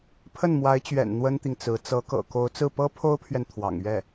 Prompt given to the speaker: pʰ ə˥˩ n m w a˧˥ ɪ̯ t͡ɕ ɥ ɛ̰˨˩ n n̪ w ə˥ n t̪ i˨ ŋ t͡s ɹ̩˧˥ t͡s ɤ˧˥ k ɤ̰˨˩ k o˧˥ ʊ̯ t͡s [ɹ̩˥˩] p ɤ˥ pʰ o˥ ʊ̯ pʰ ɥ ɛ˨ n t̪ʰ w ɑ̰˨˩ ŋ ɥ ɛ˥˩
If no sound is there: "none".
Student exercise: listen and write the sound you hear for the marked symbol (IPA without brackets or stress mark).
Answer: ɹ̩˥˩